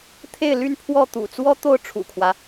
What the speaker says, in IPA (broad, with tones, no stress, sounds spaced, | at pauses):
t̪ʰ e˥˨ ɪ̯ l y˥˨ n pʰ w ɔ˥˨ t̪ ṵ˨˩ t͡s w ɔ˦ t̪ o˥˨ ʊ̯ ʈ͡ʂʰ ṵ˨˩ kʰ w ä˦